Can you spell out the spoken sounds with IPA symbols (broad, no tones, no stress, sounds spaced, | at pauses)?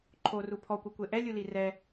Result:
ǃʰ o r u pʰ ɔ kʷ ɤ kʷ e ʔ ɛ lʲ u l i r ɛ